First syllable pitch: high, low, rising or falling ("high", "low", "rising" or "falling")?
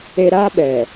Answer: high